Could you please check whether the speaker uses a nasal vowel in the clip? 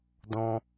yes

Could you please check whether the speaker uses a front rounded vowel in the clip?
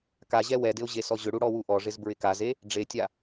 yes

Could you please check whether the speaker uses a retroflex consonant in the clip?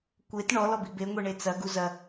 yes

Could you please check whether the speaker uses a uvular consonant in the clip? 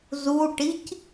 no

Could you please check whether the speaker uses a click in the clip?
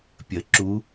yes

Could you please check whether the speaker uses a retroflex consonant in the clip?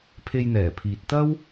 no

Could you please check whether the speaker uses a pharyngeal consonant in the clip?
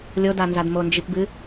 no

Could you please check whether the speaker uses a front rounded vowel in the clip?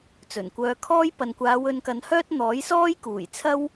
yes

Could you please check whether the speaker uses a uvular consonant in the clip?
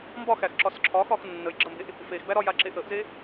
no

